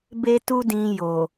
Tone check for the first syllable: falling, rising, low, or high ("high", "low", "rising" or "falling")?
high